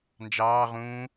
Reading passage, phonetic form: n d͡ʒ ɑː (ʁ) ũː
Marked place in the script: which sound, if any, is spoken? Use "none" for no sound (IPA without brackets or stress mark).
ʁ